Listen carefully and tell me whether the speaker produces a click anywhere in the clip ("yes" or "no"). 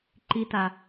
yes